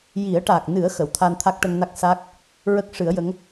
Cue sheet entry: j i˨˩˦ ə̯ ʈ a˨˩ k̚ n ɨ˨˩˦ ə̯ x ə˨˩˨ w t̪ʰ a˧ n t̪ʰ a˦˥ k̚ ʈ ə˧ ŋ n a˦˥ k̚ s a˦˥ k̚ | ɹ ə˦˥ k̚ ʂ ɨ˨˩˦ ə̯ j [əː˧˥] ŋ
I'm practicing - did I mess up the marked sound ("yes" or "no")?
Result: yes